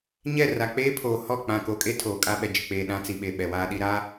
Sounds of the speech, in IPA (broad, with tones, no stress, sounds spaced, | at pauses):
ɲ ɛ˦˨ r a˨ k͡p eː˦ pʰ oː˨ h ɔ˦˨ k͡p ã˨ k o˨ kʼ e˦ tʰ oː˨ kʼ a˦ ɓ ɛ˨ d͡ʒ ɪ˨ k͡p eː˨ ɗ ã˦ t͡s i˨ ɓ e˨ ɓ ɛ˨ w aː˦ ɗ i˦ ɾ a˦